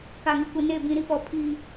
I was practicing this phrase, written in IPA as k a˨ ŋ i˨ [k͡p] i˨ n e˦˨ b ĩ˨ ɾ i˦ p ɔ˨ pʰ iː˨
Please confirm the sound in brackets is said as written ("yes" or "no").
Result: no